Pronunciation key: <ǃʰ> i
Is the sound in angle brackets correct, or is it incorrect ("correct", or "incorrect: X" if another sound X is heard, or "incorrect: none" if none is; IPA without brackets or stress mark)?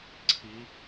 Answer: incorrect: ǀʰ